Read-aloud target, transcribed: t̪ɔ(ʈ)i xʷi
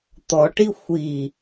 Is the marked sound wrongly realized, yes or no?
no